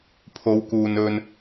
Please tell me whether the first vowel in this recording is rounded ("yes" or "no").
yes